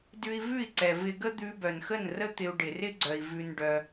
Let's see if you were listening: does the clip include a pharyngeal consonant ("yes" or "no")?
no